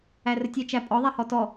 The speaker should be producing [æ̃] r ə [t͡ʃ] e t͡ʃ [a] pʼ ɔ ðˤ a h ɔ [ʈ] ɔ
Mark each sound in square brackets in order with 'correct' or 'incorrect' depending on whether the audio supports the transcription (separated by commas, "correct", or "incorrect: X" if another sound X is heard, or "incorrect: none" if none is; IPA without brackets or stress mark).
incorrect: æ, incorrect: tʲ, incorrect: æ, incorrect: t